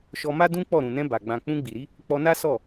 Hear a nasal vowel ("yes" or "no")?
yes